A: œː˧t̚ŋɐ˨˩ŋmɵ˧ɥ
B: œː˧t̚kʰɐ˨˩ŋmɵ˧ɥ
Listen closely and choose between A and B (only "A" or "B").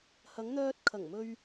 B